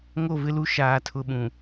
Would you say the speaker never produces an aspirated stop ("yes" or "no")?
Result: no